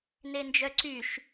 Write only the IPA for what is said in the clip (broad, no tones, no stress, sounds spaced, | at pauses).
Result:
n e n d͡ʒ œ ǀ y ʃ